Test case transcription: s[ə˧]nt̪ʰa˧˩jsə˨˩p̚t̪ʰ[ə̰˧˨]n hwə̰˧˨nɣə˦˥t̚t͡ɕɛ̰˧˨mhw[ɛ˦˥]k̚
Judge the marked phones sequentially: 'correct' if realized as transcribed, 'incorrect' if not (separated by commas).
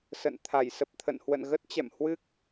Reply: incorrect, correct, incorrect